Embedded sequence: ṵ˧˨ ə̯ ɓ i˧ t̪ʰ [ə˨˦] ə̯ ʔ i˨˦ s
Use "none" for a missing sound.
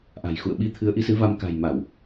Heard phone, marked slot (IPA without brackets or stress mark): ɨ˨˦